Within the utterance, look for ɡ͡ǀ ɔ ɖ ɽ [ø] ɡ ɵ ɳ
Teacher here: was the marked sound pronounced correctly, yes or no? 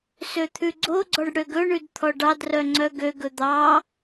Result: yes